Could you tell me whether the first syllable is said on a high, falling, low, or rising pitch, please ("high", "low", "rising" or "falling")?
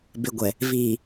low